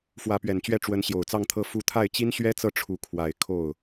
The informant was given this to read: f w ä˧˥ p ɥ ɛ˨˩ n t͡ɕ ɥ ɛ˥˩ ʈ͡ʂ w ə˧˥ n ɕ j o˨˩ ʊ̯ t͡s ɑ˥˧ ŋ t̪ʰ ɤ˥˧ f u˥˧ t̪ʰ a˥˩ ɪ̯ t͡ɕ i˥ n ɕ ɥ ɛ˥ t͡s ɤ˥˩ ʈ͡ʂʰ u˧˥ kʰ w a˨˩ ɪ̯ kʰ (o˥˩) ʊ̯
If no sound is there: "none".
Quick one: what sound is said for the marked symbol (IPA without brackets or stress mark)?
o˥˩